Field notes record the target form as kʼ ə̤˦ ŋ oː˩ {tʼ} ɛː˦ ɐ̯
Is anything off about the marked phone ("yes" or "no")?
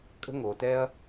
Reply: yes